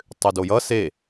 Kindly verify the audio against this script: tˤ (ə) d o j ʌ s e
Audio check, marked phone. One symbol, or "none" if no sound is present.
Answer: ʏ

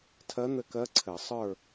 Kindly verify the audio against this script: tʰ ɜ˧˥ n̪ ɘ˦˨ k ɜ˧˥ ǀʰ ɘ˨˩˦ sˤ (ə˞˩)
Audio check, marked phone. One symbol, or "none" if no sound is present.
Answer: ə˞˦˨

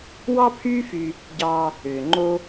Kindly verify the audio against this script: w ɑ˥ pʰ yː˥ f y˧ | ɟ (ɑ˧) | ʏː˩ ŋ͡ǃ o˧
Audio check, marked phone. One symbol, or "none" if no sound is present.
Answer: ɑ˧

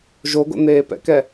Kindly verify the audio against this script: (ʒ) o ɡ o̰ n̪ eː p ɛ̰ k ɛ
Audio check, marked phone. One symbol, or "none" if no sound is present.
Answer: ʒ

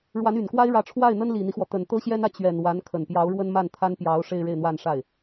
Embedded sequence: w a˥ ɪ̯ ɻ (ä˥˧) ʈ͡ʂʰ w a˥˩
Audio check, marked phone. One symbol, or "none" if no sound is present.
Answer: ä˧˥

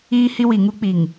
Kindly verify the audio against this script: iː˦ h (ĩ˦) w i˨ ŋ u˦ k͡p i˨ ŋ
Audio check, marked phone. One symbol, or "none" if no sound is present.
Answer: i˦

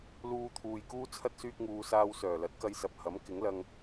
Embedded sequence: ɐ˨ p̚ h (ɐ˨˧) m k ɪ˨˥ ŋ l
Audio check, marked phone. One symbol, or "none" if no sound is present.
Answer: ɐ˨˥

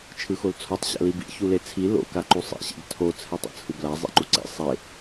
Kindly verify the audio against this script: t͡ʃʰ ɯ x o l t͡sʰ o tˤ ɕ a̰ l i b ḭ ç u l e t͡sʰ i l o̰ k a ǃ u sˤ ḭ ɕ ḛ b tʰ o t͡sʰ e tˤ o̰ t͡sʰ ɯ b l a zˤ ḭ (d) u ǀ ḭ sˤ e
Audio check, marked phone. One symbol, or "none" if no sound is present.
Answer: ǃ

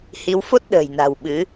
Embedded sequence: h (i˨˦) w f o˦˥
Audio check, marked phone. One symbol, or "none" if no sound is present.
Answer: i˨˦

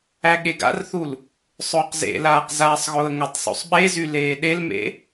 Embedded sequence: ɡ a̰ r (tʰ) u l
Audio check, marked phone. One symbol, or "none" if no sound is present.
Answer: θ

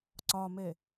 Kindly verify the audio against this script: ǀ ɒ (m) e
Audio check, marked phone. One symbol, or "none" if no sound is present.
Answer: m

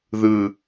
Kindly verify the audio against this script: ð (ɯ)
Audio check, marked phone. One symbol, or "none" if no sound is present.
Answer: ɯ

